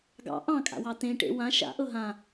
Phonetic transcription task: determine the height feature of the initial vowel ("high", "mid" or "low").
low